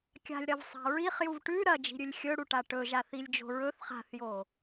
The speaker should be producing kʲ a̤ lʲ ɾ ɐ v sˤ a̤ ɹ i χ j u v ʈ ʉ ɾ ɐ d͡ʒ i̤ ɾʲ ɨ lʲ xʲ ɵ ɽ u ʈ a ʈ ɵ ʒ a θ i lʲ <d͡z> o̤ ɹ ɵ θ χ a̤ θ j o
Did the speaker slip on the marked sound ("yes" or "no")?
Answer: yes